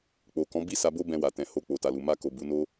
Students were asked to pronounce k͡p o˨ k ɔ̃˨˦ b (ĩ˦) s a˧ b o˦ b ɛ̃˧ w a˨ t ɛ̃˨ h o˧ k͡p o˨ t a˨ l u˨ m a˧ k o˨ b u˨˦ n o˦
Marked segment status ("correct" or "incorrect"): incorrect